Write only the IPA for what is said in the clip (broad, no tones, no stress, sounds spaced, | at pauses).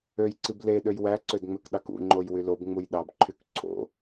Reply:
ø j ǀ i b l e ɗ ø j w æ ǀ ø d ŋ͡m ø k ɗ ɑ k ṵ ŋ͡ǃ o j w y l o b ŋ͡m u j ɗ ɑ b ǃʰ y k ǀʰ o̰